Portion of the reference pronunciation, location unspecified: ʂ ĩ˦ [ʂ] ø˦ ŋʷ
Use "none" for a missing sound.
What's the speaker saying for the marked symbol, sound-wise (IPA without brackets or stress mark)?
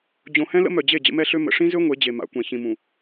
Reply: z